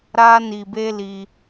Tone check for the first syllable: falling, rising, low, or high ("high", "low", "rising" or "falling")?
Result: high